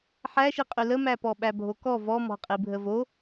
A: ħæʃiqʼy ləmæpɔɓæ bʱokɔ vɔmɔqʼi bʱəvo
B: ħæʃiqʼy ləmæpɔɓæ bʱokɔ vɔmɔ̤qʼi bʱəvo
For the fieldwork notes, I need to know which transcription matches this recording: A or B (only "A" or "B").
B